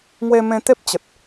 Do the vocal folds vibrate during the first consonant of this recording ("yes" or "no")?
yes